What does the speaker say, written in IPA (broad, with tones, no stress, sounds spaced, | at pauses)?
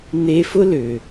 n̪ e˧ f ʊ˦ l ø˨